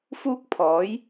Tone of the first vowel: high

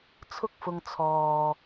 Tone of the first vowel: high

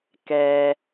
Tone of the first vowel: low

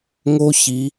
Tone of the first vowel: high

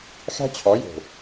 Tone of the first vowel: high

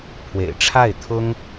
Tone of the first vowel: low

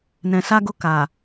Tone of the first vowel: low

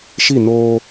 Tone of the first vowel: falling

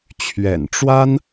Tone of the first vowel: low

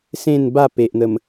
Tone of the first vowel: falling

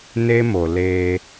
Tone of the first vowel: high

